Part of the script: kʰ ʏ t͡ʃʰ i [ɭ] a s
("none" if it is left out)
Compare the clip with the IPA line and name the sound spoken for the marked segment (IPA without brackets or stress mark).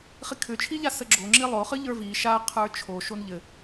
ʎ